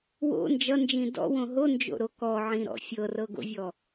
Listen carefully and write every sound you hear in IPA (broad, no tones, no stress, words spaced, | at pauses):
wo̰ nd͡ʒʌnd͡ʒĩ dɔ̰wõ ɦond͡ʒo̰ɾo kɔʕĩɾɔ̰ fʲɤrɤɡo̰vʲɔ